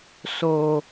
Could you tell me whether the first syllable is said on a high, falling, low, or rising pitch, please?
low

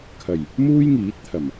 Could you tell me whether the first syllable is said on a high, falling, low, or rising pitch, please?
low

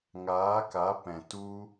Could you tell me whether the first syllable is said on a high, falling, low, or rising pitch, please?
rising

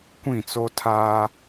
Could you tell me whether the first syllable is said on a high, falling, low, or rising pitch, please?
falling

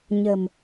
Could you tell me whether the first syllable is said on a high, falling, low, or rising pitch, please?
low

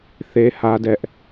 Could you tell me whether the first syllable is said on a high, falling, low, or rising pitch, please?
high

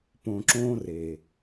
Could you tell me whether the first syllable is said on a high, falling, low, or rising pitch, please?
low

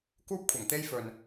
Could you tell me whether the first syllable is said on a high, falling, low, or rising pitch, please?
high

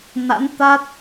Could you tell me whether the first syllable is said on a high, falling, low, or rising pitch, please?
rising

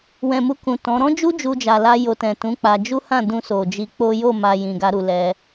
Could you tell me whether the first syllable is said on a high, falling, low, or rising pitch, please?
low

